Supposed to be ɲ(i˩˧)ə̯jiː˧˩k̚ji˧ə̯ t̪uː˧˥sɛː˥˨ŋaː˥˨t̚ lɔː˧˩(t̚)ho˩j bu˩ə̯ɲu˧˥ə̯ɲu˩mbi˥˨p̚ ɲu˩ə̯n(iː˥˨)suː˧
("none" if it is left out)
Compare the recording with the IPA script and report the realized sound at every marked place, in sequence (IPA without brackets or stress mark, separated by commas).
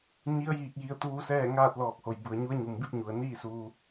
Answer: i˧˥, k̚, iː˥˨